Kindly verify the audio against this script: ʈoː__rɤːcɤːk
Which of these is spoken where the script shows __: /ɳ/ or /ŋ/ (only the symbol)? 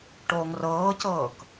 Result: ŋ